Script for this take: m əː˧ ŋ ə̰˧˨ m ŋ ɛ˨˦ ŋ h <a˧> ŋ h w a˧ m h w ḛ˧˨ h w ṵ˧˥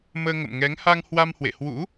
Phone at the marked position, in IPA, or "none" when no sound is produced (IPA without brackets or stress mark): a˧